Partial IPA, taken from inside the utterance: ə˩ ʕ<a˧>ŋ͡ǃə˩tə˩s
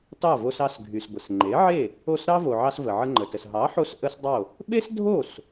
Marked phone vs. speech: incorrect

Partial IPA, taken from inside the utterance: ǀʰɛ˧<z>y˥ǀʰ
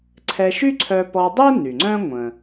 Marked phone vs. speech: incorrect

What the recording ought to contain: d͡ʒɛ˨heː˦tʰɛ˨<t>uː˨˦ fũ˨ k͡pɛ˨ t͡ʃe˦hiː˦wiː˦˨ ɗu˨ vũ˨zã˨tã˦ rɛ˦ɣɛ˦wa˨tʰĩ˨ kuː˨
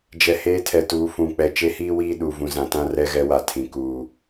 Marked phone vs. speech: correct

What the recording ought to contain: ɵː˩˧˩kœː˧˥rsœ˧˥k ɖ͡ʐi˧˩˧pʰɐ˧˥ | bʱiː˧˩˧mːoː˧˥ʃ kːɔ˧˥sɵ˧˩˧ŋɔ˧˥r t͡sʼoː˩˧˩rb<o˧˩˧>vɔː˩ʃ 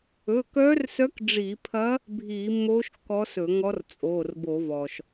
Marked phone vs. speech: correct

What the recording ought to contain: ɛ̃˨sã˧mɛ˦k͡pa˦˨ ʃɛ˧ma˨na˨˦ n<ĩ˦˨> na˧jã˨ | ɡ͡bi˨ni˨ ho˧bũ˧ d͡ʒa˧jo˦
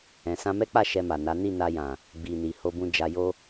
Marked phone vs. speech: incorrect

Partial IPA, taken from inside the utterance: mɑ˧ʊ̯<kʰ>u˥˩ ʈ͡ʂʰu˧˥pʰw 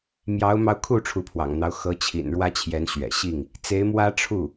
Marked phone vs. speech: correct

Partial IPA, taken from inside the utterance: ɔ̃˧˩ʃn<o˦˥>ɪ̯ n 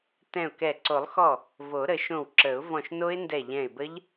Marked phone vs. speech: correct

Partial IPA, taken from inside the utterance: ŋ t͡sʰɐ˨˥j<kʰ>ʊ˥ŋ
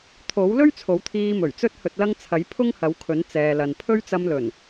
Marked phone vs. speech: incorrect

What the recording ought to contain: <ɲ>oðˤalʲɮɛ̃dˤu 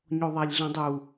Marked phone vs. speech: correct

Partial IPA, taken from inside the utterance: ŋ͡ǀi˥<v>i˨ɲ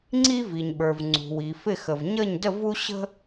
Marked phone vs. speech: correct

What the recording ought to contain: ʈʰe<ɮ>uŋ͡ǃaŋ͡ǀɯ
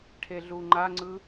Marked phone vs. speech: correct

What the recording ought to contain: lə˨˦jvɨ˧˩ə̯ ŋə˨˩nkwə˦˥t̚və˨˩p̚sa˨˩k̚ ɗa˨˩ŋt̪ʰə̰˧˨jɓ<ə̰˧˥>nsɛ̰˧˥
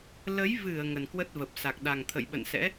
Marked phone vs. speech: incorrect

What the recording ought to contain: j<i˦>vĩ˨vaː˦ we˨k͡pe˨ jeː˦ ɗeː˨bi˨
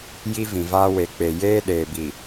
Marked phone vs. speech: correct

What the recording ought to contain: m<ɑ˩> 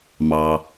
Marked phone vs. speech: correct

